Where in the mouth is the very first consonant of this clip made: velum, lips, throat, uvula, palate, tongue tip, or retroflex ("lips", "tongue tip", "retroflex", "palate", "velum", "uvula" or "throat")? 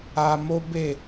lips